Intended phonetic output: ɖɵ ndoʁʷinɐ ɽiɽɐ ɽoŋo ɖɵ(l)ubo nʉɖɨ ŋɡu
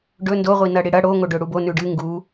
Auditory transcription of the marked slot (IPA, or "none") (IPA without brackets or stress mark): ɽ